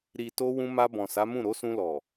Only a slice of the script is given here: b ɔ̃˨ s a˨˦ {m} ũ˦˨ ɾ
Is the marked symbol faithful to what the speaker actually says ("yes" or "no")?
yes